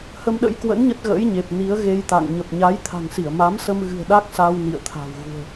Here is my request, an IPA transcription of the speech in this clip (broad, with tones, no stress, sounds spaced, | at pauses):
h ə˧ m ɗ ə̰˧˥ j k w ə̰˧˥ n ɲ ə˦˥ t̚ ɣ ə̰ː˧˥ j ɲ e˨˩ p̚ n i˨˦ ə̯ ɣ e˧ j t̪ a̰˧˨ ŋ ɲ ə˨˩ p̚ ɲ a˨˦ j t̪ʰ a̤˨˩ ŋ s i˧˩ ə̯ m a˨˦ m s ə˧ m ɣ ɨ̤˨˩ ə̯ ɗ a˦˥ k̚ s a˧ w n ḭ˧˨ ə̯ t̪ʰ a̤˨˩ w ɣ ṳ˨˩ ə̯